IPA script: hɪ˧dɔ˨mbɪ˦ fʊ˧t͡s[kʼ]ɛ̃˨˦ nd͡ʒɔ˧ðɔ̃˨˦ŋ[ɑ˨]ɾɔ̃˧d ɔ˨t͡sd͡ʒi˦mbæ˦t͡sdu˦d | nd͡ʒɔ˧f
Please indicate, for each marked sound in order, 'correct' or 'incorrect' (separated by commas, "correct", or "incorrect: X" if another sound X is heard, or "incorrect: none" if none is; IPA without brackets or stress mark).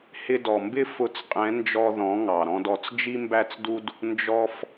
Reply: incorrect: qʼ, correct